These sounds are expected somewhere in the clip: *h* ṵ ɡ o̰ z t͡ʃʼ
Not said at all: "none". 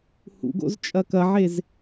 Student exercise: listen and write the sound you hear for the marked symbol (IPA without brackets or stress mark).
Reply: h